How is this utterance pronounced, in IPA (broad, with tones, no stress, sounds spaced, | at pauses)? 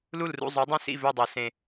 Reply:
l u˥˩ l r ṵ˥˩ zˤ y˨˥ dˤ ĩ˥˩ s ḭ˥˩ v ø˥˩ dˤ e˩˧ s ẽ˨˩